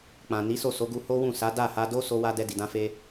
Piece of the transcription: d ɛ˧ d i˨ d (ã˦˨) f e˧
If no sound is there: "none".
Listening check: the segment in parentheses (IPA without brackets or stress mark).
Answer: ã˧